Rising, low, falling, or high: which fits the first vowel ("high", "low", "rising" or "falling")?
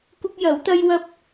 high